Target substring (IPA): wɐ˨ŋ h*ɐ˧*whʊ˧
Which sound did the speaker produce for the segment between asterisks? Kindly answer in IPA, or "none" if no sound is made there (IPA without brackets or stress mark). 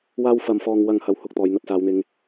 ɐ˧